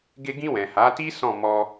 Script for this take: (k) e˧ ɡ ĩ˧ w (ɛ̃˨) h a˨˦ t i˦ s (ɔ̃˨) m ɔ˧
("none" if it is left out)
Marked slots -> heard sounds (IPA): ɡ, ɛ̃˨, ɔ̃˦˨

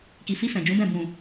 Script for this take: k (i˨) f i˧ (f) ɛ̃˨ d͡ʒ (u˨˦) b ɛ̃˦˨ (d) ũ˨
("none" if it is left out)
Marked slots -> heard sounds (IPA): i˨, f, ũ˨˦, b

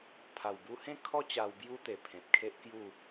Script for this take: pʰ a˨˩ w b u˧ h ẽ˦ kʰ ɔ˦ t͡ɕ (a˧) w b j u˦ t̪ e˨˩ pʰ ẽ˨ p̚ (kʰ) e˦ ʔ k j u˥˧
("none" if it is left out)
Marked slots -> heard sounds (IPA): a˧, kʰ

